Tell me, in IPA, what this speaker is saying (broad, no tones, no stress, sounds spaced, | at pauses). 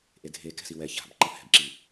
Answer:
ʔ e dʱ e k ɛ̤ s i w ɛ ç a̤ b ǃ ʌ h ɛ̤ b ǁ i